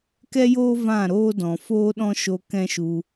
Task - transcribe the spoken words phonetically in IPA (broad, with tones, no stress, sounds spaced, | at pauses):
k ɛ˦ j oː˦ v ã˦˨ ɾ oː˦ d ɔ̃˨ f oː˦ ɗ ɔ̃˦ ʃ o˧ k ɛ̃˦ ʃ u˧